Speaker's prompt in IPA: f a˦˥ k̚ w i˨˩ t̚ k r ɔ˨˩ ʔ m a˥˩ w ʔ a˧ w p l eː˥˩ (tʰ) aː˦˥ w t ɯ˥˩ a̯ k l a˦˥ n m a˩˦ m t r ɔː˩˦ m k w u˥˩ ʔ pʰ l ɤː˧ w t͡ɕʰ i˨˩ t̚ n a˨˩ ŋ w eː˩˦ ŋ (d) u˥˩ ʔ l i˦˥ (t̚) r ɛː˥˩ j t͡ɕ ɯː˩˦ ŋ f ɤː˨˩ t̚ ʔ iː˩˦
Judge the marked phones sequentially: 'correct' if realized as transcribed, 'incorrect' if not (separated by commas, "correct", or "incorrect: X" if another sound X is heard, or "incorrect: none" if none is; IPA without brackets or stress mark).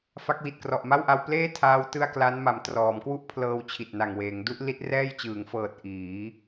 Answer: correct, correct, correct